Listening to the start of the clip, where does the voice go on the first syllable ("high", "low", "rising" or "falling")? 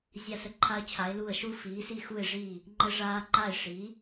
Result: falling